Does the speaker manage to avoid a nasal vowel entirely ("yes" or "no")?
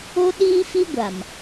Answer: yes